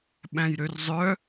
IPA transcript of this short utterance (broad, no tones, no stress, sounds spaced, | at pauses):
ɓ æ̃ j ɾ ø r zˤ œ